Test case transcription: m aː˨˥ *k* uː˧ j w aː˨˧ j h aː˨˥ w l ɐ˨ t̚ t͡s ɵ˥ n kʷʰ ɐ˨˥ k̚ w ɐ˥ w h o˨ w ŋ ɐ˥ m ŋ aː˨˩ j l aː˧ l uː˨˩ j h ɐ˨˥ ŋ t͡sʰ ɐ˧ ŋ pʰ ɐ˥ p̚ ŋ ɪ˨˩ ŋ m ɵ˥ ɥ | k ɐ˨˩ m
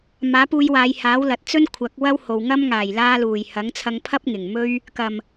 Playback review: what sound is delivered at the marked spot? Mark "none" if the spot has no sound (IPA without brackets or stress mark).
p